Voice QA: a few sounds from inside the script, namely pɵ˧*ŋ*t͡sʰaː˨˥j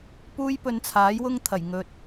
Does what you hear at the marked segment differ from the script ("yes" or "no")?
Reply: yes